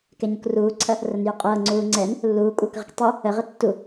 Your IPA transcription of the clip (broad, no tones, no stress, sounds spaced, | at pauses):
k ɛ ɲ u k r uː ǀʰ ɐ | r ə n j u qʼ ɤː ŋ͡ǀ uː ŋ͡ǀ ɛ n | lː uː kʷʼ ɤː k ʁ ə k tˤ u | ə ʁ ə tː u